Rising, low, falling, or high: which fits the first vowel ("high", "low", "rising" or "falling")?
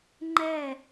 falling